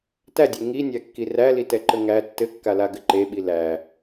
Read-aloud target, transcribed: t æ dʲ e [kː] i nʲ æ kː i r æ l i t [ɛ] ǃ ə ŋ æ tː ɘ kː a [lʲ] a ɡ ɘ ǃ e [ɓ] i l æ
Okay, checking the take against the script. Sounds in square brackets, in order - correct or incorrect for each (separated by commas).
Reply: incorrect, correct, incorrect, correct